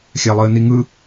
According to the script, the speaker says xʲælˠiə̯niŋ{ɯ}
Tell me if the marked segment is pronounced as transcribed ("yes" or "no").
yes